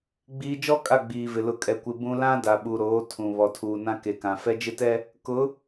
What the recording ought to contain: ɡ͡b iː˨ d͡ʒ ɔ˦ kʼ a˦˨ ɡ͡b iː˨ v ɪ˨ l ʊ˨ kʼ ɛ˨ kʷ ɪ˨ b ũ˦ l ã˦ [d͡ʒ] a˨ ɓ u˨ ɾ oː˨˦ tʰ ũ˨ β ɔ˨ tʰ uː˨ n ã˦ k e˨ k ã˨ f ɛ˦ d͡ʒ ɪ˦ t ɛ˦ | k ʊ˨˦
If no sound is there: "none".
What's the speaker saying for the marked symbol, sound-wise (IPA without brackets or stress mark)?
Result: d